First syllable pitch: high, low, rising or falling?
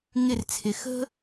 falling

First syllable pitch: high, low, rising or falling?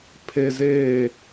low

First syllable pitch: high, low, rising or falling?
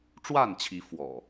falling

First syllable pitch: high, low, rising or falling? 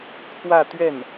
falling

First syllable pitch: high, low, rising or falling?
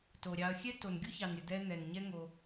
low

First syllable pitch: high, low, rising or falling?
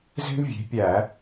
high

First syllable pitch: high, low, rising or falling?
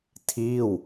falling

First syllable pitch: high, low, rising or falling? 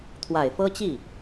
low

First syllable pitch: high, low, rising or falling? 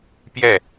falling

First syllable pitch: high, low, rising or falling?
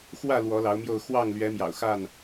falling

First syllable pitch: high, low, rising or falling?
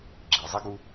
low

